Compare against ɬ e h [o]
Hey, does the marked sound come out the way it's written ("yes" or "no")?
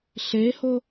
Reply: yes